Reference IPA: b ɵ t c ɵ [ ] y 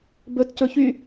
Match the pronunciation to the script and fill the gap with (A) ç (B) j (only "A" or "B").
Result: A